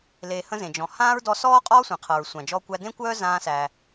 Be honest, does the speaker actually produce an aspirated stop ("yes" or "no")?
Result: yes